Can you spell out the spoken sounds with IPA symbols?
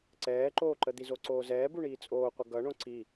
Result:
ǀɛːǃoːǃə d̪izoǀoːzɛː buɳiːt͡sʼoːqʷʌ ɡʌɳõ ǀi

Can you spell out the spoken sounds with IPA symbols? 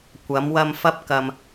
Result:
kʷɐ˨˧mwɐ˧m fɐ˧p̚kɐ˨m

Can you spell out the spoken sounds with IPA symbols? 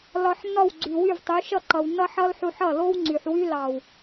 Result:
lɒ˨ħnːɒ˦˨w ɡ͡ǀy˨wy˦˨vtˤy˨˦ ʃʌ˦˨ǃʌ˨wnːʌ˦ħʌ˦l ħu˧ħʌ˦˨lo˦w ŋ͡ǀy˨ħwy˦ lɑ˨w

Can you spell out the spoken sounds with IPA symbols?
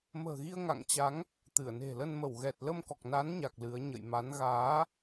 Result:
mə̤ː˨˩ɣi˧ə̯ŋa̰˧˨ŋt͡ɕa˨˦ŋ | t̪ɨ˧˩ə̯ne̤˨˩lə˧n mə˧˩wɣɛ˨˩t̚ lə˧mkɔ˨˩k̚na˨˦nɲa˨˩k̚ lɨ˨˦ə̯ ɲə̰˧˨jma˨˦n ɣaː˨˦

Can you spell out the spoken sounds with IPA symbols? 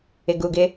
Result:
ɪ˨ɡu˨ɡɪ˦

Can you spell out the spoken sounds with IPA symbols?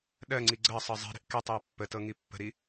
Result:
ɗɜŋ͡ǀi ɡ͡ǀɜsˤɤ zˤi̤ɾi̤ʔ ketˤjʊ pːətɤŋi pːə̤ɾi

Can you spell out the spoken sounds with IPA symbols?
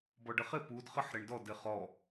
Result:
bɔɖəχɪ pud χəħ ɾɪɳdɔd ɪχɔ

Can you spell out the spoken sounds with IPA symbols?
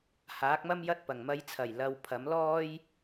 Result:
haː˨˥k̚mɐ˥mjɐ˥t̚ pɐ˨˩ŋmɐ˧jt͡sʰɐ˨˩j lɐ˨w pʰɐ˨˥mlɔː˥j

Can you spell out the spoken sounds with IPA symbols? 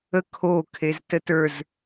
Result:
ə kʰokʰez tətə˞z

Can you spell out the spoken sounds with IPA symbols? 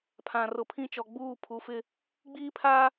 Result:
pʰã˨rʊ˨ pʰĩ˦ t͡ʃɔ˨ɡ͡buː˦˨ pʰu˨˦fɪ˦ | ɡ͡biː˦pʰaː˦

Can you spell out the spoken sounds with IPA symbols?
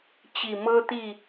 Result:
t͡ɕi˨˩mɤ˦t̪i˥˨

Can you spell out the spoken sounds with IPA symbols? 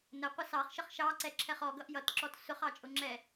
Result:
nə qʷəsɑχ ʃəχʃɑǀɛǁʰɛχ ɔ ɡʌʔjʌtǁɔt sʊχɑ t͡ʃʼʊŋ͡ǁɛ

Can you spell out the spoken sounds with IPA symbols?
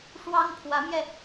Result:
ʂwɑ˥ŋpʰwä˧˥mjɛ˧

